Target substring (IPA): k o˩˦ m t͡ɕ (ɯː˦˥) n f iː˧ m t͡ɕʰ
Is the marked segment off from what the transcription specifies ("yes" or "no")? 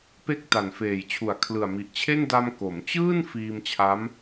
yes